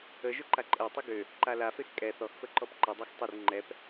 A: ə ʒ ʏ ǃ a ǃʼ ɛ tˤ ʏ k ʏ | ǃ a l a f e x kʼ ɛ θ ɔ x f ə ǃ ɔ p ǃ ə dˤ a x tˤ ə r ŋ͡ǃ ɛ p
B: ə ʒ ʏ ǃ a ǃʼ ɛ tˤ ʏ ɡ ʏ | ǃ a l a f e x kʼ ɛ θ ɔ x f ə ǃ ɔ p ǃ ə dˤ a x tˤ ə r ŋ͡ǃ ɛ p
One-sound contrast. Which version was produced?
B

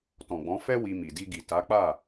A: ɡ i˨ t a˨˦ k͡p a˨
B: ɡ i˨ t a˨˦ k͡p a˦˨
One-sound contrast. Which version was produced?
B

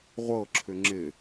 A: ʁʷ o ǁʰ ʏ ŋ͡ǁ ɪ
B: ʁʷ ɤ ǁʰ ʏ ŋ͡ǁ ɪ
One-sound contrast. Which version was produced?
B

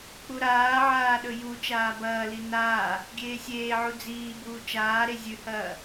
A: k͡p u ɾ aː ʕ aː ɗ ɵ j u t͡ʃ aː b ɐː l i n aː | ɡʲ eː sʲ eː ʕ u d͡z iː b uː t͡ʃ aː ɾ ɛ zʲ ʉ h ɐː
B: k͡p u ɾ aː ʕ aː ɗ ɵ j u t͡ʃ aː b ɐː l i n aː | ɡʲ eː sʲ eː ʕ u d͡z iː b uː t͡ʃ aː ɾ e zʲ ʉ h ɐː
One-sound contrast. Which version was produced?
B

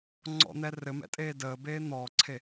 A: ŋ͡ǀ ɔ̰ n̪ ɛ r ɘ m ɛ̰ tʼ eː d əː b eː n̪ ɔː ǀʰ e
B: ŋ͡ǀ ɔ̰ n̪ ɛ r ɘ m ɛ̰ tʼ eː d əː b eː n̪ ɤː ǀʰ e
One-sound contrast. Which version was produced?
A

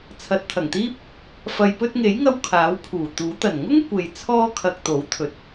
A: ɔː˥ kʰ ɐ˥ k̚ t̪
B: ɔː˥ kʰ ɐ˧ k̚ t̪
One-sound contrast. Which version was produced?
B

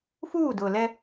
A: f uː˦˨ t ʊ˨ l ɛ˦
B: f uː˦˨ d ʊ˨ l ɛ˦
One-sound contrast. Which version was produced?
B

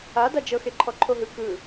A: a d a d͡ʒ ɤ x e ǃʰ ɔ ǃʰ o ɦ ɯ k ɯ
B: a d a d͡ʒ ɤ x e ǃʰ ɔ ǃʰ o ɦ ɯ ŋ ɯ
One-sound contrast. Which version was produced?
A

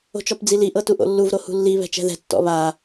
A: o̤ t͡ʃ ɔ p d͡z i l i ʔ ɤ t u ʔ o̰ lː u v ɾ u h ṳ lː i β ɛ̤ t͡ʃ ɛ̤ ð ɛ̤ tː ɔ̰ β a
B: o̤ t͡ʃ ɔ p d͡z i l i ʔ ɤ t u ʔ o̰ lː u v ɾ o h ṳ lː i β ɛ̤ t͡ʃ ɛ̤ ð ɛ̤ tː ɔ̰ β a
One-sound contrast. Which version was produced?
B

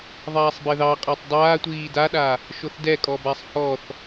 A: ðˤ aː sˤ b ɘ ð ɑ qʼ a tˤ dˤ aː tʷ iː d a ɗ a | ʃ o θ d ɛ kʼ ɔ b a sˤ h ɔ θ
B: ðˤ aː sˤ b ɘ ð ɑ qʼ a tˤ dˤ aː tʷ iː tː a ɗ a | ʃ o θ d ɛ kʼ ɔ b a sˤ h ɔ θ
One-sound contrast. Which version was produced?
A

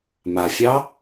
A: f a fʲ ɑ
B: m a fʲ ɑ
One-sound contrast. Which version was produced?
B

